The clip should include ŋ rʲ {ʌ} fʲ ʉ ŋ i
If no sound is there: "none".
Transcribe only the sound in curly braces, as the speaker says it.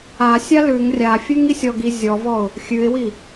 a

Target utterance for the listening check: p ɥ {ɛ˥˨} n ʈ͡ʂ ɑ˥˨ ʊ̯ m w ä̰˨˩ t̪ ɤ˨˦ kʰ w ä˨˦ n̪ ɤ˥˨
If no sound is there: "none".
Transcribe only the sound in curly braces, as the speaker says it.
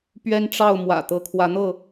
ɛ˦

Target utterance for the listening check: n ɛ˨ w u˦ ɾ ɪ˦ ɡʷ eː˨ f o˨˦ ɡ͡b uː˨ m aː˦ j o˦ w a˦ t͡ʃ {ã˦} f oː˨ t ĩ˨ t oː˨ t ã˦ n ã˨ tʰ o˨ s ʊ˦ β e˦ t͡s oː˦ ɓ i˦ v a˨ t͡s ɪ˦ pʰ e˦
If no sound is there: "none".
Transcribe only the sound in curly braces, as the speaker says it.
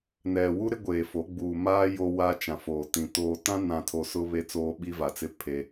ã˨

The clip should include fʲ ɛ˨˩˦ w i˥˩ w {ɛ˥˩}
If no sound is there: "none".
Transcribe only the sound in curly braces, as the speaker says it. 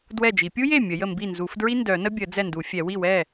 ɛ˥˩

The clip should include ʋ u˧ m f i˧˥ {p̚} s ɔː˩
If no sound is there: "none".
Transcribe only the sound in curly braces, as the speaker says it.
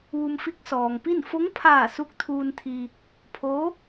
k̚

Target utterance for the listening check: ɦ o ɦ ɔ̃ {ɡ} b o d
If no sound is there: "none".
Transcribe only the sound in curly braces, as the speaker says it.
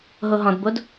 d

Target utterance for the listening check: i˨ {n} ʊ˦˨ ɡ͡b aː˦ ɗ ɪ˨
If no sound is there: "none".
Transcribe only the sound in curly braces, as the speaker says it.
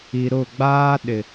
ɾ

